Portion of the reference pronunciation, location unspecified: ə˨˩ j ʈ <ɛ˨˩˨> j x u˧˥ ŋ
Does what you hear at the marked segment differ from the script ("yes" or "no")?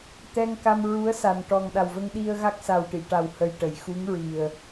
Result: yes